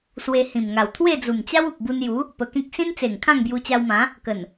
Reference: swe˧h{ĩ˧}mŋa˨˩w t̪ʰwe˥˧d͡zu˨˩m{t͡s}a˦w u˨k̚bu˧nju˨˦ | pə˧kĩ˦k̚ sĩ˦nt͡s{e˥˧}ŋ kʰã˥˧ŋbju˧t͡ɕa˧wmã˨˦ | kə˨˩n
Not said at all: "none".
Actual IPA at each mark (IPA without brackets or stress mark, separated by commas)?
ĩ˨˩, t͡ɕ, e˨˩